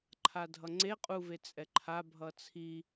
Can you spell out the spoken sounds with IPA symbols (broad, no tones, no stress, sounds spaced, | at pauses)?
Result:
ǃʰ a dʱ ʌ ŋ͡ǀ e qʼ u v e t͡sʼ ɛ ǃʰ a bʱ ʌ t͡sʰ i